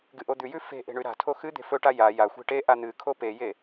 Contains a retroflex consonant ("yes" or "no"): yes